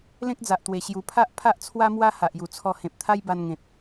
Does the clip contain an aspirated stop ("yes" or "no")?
yes